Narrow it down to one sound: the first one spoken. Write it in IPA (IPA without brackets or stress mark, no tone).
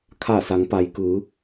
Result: kʰ